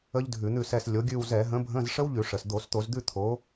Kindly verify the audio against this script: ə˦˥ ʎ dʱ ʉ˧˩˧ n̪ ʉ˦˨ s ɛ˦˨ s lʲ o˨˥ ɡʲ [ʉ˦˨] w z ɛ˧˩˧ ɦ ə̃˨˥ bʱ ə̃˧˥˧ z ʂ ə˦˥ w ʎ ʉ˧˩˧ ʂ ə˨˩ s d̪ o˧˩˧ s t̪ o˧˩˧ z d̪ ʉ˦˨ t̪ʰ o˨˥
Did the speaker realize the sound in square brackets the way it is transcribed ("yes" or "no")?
yes